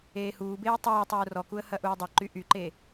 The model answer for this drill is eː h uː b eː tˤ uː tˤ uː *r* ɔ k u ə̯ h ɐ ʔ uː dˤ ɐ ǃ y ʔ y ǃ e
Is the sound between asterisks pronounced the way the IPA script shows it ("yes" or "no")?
yes